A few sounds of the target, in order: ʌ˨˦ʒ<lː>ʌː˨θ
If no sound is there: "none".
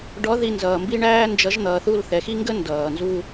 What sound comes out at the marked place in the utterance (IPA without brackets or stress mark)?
n̪